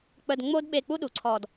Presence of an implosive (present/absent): present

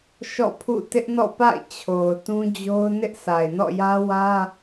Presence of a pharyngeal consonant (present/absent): absent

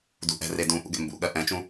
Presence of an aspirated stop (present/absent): absent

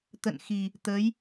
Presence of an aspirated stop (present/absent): absent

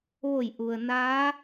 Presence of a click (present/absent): absent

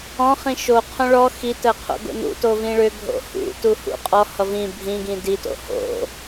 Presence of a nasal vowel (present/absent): present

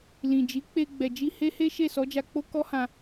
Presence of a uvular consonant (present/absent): absent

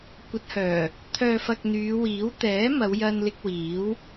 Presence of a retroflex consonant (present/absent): absent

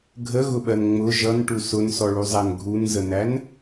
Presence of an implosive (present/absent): present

